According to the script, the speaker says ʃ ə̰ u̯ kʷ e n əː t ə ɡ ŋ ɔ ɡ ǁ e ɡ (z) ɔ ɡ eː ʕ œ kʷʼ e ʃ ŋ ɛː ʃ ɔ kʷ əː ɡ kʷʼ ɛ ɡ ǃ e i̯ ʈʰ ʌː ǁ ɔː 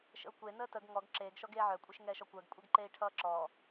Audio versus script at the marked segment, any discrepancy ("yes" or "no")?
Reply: yes